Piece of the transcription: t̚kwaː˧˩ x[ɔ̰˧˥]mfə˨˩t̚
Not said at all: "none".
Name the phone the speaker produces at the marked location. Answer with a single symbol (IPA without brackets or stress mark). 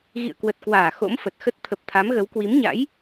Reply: o̰˧˥